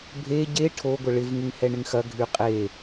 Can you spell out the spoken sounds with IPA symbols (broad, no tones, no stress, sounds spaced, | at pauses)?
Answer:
bʱ e ɟ e ʈʰ o ɡʷ ə ɭ ɪ v ŋ ɪ ŋ h ɛ ɳ ɪ ŋ x ɐ ɡʱ y qʼ e